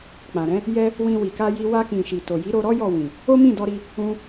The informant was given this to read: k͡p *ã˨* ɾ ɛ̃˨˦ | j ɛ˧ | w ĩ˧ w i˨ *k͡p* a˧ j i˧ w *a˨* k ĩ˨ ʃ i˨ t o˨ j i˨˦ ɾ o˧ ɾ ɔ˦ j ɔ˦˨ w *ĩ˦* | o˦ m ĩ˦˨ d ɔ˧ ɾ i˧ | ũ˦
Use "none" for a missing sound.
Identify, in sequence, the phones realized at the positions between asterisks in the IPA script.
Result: ã˨, k, a˧, ĩ˨

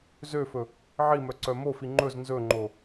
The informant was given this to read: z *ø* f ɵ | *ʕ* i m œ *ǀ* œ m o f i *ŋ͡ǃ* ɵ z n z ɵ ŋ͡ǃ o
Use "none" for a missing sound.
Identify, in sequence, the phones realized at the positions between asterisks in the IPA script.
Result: ø, ʕ, ǀ, ŋ͡ǃ

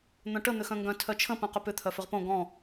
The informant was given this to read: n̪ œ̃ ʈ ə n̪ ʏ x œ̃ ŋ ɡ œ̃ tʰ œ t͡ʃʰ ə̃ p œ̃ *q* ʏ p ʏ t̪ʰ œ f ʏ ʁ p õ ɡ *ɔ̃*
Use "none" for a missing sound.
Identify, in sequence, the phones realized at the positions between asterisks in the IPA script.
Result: q, ɔ̃

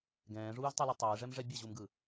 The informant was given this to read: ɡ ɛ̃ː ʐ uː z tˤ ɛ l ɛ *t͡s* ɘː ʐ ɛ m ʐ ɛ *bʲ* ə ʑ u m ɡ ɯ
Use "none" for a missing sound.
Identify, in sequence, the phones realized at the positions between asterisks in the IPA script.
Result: tˤ, bʲ

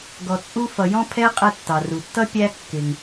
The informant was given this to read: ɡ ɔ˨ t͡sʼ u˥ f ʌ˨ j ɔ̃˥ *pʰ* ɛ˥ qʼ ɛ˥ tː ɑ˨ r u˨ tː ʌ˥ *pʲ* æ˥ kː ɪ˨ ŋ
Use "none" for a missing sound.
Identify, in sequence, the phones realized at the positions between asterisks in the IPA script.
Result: pʰ, pʲ

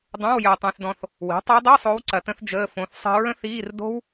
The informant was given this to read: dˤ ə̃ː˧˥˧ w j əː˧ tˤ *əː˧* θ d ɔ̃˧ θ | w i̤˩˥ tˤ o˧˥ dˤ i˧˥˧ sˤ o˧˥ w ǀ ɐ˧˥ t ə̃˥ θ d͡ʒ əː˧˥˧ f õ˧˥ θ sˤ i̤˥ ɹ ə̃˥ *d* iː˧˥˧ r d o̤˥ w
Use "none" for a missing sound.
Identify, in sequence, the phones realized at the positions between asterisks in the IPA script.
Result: ə̃ː˧, θ

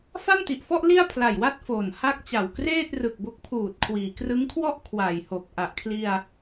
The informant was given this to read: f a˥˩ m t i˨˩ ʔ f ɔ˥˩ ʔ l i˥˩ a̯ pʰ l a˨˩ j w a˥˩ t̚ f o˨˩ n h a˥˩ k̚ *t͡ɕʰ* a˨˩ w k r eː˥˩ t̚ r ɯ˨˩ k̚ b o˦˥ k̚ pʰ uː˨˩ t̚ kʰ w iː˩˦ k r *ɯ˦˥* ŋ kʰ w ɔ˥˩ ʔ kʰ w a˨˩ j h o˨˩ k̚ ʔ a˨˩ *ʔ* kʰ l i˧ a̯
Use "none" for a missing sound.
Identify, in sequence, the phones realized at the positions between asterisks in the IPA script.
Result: t͡ɕ, ɯ˦˥, ʔ

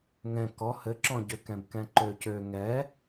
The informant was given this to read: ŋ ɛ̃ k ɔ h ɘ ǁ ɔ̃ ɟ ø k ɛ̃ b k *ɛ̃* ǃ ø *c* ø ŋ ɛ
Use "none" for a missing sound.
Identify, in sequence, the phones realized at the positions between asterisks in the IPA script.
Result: ɛ̃, c

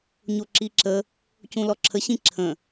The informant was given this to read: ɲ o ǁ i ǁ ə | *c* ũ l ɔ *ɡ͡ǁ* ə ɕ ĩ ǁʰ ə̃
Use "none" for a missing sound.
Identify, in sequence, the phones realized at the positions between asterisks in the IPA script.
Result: c, ǁʰ

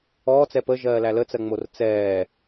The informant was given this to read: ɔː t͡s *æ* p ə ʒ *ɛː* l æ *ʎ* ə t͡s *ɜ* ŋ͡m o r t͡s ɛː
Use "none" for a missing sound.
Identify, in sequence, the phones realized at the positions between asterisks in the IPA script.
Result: ɛ, ɜː, l, ɜ

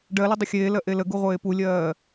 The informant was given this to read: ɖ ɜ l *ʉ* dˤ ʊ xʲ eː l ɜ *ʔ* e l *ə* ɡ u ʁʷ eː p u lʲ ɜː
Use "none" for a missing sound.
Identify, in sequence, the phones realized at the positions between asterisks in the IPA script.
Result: ʊ, ʔ, ə

